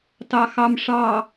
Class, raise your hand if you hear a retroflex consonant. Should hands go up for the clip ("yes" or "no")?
yes